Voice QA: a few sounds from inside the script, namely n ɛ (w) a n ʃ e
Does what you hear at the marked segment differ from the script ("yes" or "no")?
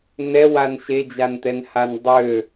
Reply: no